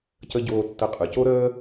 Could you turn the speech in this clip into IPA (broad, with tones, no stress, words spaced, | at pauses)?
cə˧ ɟoː˧tːə˧qʼɯ˨ co˦ɾəː˦